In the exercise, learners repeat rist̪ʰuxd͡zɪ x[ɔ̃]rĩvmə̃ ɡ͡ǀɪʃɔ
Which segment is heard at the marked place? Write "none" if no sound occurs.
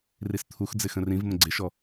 ə̃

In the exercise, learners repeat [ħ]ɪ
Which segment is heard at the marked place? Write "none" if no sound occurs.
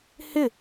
h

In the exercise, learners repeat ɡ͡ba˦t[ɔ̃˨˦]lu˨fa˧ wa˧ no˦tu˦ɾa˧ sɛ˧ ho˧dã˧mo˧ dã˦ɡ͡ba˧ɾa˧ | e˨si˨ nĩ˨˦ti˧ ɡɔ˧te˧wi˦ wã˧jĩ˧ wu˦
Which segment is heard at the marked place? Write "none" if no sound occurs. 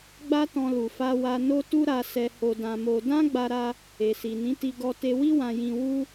ɔ̃˧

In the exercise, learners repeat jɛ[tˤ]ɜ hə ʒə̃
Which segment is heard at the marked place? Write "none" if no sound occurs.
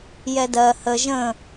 d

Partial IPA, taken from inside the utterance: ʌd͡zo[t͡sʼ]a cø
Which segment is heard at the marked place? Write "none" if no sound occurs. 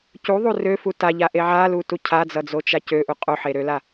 t͡ʃ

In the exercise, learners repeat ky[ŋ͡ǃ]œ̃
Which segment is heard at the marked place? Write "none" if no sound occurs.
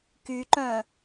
ǃ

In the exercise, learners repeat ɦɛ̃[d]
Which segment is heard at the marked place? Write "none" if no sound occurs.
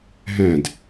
d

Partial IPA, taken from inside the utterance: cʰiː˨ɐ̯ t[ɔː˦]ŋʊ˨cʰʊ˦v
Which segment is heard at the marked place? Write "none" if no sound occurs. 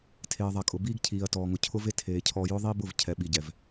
ɔː˨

